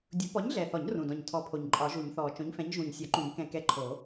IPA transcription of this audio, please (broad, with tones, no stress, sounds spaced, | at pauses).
dʲ u˨˩˦ p ɔ˨˥ ɲ ɮ ɛ˨˩ θ ɔ˨˩˦ ɲ r ũ˨˩ d ɔ̃˨˩ ɲ tʰ ɔ˨˥ pʰ o˨˩ ɲ ǃʼ ɒ˨˩˦ ʒ u˨˩˦ ɲ θ ɔː˨˩ t͡ʃ õ˨˥ ɲ f ɛ̃˨˥ ɲ ʒ ũː˨˩ ɲ sʲ ɔ˨˩˦ ǃ ũ˨˩˦ ɲ k ɛ̃˨˩ k ɛ˨˥ ǃʰ o˨˩˦